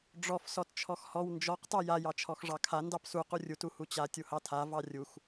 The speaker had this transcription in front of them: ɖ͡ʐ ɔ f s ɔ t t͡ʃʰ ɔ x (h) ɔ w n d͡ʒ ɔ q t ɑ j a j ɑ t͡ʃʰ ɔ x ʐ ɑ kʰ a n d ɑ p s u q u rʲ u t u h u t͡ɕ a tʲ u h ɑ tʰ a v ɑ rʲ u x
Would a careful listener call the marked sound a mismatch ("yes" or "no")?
no